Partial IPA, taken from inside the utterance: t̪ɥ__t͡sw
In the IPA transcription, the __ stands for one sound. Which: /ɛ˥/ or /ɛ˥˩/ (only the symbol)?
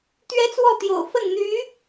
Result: ɛ˥